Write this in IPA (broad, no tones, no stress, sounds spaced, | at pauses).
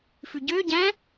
f ʉ ɟ ø ɟ æ̃